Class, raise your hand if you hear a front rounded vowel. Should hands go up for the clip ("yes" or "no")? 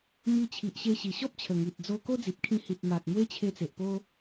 no